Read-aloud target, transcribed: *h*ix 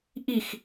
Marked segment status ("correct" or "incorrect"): incorrect